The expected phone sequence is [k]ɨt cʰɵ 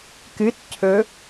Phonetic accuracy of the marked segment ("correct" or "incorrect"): correct